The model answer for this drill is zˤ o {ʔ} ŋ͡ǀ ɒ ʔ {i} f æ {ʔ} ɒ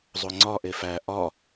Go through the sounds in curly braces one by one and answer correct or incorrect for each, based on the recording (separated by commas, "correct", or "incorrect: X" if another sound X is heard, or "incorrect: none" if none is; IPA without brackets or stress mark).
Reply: incorrect: none, incorrect: e, correct